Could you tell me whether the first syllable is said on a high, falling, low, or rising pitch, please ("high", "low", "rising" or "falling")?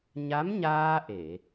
rising